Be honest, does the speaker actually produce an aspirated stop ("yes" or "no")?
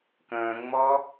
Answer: no